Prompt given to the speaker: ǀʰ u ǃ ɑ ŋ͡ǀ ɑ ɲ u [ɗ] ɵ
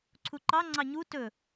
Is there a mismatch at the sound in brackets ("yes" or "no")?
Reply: yes